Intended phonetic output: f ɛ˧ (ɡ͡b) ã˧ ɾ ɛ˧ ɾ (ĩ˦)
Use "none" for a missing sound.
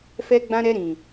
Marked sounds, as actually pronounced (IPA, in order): ɡ͡b, ĩ˨

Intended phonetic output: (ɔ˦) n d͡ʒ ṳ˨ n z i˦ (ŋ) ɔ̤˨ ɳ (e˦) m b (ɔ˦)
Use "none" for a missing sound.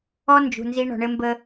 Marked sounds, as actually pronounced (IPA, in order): ɔ˦, ɳ, ɘ˦, ə˦

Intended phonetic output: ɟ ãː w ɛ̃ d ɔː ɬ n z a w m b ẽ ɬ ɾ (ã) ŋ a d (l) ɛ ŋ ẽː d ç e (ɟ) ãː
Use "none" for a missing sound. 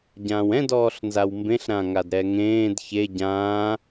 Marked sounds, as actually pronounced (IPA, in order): ã, ɾ, ɟ

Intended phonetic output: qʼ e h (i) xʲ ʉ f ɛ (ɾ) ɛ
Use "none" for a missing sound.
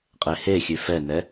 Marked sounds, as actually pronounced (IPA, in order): e, n

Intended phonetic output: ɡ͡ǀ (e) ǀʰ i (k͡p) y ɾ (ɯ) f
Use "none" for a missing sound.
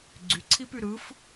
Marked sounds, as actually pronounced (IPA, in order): y, p, ɯ

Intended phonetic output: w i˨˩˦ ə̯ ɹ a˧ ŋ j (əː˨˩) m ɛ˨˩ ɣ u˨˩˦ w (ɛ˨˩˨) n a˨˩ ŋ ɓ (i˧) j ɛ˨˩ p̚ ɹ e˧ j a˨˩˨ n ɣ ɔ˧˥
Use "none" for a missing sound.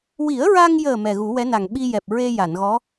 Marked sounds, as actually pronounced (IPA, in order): əː˨˩, ɛ˧˥, i˧

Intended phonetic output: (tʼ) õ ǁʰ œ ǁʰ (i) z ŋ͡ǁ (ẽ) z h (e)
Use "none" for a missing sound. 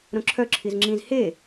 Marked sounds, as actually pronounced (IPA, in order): ɾ, i, ĩ, e

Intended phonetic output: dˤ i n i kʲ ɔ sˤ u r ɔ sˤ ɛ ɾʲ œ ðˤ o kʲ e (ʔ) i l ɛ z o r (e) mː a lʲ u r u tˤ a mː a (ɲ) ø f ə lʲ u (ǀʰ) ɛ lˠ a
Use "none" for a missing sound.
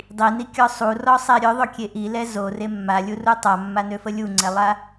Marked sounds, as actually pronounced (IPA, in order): ʔ, e, n, ŋ͡ǀ

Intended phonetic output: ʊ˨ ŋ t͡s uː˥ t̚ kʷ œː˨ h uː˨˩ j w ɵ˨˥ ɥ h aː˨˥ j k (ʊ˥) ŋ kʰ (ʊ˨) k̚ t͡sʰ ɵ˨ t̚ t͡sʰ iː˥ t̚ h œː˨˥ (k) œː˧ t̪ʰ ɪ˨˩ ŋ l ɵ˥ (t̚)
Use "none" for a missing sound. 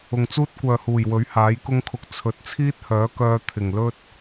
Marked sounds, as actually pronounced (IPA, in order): ʊ˥, ʊ˧, k, t̚

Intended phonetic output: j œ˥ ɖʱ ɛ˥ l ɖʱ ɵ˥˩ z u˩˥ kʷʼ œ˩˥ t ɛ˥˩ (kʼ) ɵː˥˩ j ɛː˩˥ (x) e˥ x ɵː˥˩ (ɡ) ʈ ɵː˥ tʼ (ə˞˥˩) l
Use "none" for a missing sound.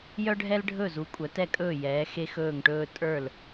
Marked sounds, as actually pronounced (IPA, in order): kʼ, x, ŋ, ə˞˥˩

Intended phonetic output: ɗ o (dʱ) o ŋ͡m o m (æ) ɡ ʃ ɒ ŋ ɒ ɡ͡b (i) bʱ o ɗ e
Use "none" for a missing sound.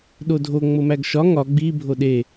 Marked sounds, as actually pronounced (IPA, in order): dʱ, æ, i

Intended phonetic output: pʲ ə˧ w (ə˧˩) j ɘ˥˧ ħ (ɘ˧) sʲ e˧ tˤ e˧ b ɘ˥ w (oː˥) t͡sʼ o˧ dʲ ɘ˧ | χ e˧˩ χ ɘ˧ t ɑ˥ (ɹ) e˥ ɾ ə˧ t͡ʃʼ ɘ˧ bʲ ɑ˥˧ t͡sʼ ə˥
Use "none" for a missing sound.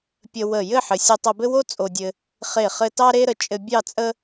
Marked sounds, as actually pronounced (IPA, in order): ə˧˩, ɘ˩˧, o˥, ɾ

